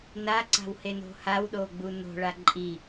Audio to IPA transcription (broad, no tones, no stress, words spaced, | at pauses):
naǀa̤wheno̤ hawɗoɡ͡bu no̤ɭa ǃʼi